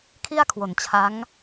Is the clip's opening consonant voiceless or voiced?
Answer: voiceless